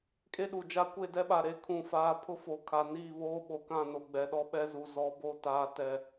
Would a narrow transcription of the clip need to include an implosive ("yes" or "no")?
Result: yes